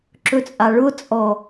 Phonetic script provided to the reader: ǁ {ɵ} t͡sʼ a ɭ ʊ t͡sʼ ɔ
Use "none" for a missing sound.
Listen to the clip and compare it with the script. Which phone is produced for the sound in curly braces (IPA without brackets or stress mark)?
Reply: ɵ